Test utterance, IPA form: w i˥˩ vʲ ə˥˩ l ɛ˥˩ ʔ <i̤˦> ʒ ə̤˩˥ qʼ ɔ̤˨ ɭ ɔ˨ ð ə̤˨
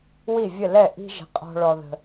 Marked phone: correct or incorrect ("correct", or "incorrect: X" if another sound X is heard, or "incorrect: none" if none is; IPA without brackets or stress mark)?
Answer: correct